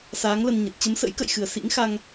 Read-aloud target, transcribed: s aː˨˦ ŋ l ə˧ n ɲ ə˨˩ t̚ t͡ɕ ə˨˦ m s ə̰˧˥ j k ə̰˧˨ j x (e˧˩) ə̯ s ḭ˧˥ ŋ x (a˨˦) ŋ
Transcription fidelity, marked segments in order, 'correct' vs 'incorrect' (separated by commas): incorrect, incorrect